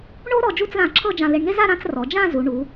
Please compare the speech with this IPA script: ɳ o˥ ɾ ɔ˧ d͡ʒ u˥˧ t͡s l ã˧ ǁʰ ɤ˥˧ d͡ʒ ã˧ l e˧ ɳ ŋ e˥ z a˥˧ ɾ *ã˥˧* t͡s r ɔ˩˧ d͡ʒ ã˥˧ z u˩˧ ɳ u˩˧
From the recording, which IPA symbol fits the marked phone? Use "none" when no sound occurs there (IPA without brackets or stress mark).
ã˥˧